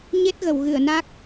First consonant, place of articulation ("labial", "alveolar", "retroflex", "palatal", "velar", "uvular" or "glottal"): palatal